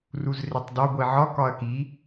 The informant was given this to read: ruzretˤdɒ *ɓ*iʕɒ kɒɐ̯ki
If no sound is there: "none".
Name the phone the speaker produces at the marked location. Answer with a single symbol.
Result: ɡʷ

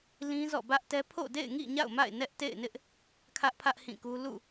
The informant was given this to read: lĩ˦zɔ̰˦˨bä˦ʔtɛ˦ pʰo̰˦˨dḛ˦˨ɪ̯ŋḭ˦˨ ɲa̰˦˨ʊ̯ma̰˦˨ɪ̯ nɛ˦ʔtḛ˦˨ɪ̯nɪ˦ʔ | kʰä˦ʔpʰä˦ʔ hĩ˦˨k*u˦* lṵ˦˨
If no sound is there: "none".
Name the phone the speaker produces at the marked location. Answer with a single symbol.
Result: u˦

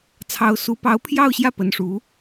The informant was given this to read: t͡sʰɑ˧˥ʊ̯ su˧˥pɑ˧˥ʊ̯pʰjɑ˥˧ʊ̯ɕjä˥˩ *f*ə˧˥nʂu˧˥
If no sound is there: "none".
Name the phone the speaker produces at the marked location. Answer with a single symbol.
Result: p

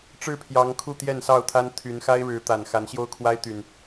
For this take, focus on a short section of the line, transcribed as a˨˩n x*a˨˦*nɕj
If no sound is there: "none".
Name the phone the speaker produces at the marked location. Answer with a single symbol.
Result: a˨˦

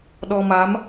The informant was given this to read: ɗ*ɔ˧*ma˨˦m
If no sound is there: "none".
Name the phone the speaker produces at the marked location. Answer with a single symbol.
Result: ɔ˧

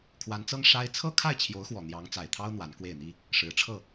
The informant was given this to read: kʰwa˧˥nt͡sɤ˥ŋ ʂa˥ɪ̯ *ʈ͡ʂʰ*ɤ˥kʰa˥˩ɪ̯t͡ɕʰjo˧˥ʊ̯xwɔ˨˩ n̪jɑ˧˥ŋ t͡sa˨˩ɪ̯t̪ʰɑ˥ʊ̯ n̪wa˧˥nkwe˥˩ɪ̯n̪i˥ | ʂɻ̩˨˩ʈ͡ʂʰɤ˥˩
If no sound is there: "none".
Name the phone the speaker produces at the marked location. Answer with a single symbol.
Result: t͡sʰ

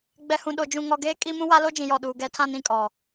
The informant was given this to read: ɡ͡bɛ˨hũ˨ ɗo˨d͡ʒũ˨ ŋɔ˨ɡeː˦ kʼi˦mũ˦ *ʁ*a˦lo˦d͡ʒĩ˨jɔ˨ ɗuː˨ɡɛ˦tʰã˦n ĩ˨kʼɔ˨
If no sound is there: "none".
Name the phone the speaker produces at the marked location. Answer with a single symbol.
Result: w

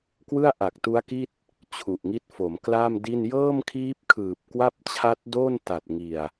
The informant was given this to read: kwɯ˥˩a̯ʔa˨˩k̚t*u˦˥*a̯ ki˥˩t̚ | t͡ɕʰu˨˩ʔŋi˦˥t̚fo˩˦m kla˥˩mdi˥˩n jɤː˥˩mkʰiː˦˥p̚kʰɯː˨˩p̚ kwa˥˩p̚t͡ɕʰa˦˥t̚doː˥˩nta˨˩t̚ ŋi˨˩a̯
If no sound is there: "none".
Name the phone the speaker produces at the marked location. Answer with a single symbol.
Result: u˦˥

